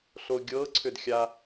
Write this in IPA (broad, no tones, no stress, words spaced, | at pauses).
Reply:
ɬoɡʲɤǀʰʏd xʲa